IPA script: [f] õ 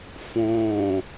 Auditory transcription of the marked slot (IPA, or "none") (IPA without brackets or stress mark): f